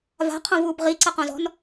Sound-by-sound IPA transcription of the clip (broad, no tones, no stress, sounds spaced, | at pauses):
v a̤ qʰ õ v uː b ʁ i ǀ ɐ q õ z ɔ̤ n